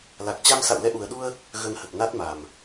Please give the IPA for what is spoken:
l a˨˩ k̚ t͡ɕ a˧ m s a̰˧˨ w l ɛ˧ ʔ u˨˩ ə̯ ɗ u˧ ə̯ | ɣ ə˧ n h ə˨˩ t̚ n a˦˥ t̚ m a˨˩ m

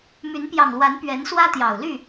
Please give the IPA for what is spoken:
m y˨˦ n p j ɑ˨˩ ŋ l w a˨˦ n p ɥ ɛ˨˦ n s w ä˦ t̪ j ɑ˨˩ ʊ̯ l y˥˨

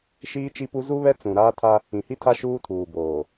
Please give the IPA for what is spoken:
ʃ iː˦ t͡ʃ i˦ p u˦ z u˦ β ɛ˦ t͡s ũ˨ ɾ aː˦ tʰ a˦ | ĩ˨ h i˦ tʰ a˦ ʃ uː˦ tʰ uː˨ b oː˨

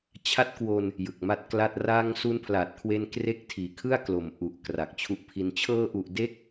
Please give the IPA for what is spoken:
t͡ɕʰ a˦˥ t̚ k w o˧ n | j ɯ˨˩ k̚ m a˦˥ t̚ k l a˥˩ t̚ r a˧ ŋ s u˦˥ n pʰ l a˨˩ t̚ kʰ w e˧ n k r e˥˩ k̚ tʰ iː˨˩ kʰ ɯ˥˩ a̯ k l o˨˩ m ʔ u˨˩ ʔ k r a˨˩ k̚ t͡ɕʰ u˦˥ ʔ pʰ i˧ n t͡ɕʰ ɤː˧ ʔ u˨˩ ʔ d e˥˩ k̚

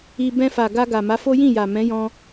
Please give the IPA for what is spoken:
i˧ b ɛ̃˧ f a˨ ɡ a˧ ɡ a˨ m a˨˦ f o˦ j ĩ˦˨ j a˨ m ɛ̃˨˦ j ɔ̃˧

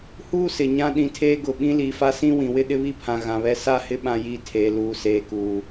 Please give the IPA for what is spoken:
h uː˦ s ɪ˨ ɲ ã˦ ɗ ĩ˨ tʰ eː˦ ɡ ʊ˨ ɓ ĩ˦ l iː˨ f a˦ s ĩ˦ w ĩ˨ w ɪ˦ ɗ ɪ˦ β i˦ pʰ ã˨ ɣ ã˨ β ɛ˦ s a˦ h ɪ˦ ɓ ã˦ j i˦˨ tʰ eː˨ l uː˨ s eː˨ k uː˨

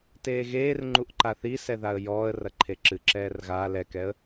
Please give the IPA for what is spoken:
t eː ɣ eː r ŋ͡ǃ u ʔ ǃ a θ i s ɛ ð a ə̯ j ɔː ə̯ r ɐ ǃʰ e ǁ ɨ ǁ ɛː r ɣ a l ɛ k ɛ ə̯

